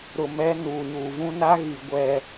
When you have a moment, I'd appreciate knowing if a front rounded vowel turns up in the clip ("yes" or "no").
no